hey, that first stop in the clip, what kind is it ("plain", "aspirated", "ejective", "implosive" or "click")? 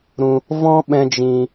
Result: implosive